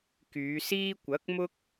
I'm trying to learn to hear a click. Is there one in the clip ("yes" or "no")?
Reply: no